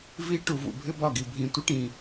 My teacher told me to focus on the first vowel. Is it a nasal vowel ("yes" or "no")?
no